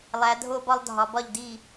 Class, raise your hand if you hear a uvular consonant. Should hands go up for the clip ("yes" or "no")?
no